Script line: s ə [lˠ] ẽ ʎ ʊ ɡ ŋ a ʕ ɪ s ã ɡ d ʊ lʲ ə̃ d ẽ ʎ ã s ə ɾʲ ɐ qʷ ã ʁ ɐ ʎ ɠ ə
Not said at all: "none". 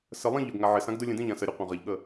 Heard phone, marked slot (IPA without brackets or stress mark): lˠ